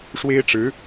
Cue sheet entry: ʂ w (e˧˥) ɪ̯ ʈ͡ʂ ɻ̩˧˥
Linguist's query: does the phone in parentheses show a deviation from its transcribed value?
yes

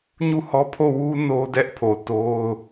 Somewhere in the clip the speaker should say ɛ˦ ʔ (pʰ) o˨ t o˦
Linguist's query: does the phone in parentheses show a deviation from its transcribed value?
no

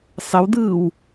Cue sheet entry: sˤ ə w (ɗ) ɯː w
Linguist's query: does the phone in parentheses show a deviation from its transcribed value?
yes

